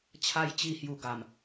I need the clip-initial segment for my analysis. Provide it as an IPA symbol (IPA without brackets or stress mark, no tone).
t͡ɕʰ